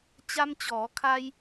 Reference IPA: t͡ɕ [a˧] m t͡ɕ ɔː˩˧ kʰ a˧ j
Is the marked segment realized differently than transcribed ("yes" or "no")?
no